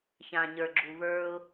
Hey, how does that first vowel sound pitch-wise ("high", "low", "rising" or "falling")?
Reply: low